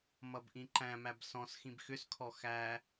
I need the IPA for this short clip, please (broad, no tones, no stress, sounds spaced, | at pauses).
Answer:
m ʌ b ʔ ĩ ǃ æ̃ m æ b s ɔ̃ s x ĩ b x ʏ s kʰ ɔ x æ